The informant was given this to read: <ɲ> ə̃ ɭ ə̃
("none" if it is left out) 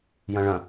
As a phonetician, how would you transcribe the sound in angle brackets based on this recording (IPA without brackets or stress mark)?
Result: j